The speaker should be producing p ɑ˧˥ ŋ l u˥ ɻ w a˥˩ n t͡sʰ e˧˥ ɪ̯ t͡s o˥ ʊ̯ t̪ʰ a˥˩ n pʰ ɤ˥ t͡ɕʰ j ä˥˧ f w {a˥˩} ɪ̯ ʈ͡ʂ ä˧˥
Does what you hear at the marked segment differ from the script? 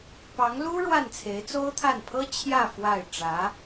no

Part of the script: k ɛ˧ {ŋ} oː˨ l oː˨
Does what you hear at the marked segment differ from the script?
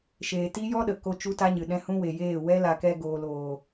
yes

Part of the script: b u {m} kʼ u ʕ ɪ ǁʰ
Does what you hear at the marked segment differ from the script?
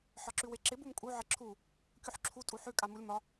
no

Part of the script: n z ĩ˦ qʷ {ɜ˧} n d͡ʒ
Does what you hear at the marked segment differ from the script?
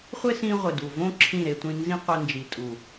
yes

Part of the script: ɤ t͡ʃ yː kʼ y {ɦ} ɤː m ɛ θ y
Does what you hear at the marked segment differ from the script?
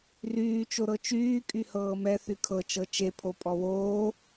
yes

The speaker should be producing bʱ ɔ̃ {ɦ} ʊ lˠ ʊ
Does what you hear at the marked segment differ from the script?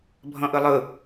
yes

